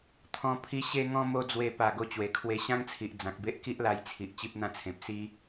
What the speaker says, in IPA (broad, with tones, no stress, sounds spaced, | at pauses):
t̪ʰ ɔ̃˧ pʰ i˧ ɕ e˧ ŋ ɔ̃˧ m o˧ d͡z w e˧ p a˨˩ ɡ o˧ t͡ɕ w e˨˩ kʰ w e˧ ɕ ã˦ ŋ t͡sʰ i˨ ʔ d͡z ã˨ k̚ b e˦ ʔ k i˦ ʔ l a˧ j t͡sʰ i˨ ʔ t͡ɕ i˦ p̚ n̪ ã˦ t͡sʰ ẽ˨ p̚ s i˦